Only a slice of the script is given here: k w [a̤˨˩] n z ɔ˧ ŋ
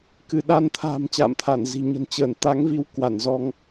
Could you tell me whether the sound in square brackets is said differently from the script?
yes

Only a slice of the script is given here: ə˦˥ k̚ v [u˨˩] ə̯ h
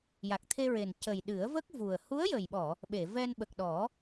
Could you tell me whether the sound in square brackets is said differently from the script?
no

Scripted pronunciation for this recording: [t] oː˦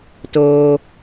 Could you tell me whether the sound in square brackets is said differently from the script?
no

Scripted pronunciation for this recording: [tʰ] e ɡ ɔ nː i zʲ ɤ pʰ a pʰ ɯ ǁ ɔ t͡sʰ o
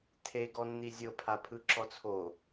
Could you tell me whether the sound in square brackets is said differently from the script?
no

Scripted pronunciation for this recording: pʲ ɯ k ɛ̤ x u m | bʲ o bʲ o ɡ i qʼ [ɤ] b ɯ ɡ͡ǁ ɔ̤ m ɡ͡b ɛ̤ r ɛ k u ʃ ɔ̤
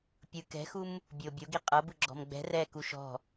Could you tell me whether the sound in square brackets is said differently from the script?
no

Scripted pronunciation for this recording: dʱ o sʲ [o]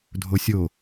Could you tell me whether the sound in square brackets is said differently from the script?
no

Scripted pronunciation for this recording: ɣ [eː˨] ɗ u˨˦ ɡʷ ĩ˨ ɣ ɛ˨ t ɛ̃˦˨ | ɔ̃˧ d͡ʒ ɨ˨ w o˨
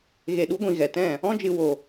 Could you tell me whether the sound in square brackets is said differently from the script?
yes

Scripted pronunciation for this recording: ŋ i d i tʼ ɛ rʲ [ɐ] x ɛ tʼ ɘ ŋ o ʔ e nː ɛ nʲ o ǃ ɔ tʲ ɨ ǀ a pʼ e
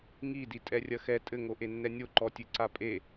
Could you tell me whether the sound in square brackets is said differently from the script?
no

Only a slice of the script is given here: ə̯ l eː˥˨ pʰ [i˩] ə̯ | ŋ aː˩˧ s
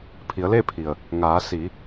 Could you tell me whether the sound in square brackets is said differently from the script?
no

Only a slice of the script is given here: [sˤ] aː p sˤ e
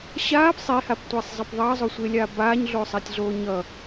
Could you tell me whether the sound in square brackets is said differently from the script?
yes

